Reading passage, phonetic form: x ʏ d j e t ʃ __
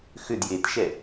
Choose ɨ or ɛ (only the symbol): ɛ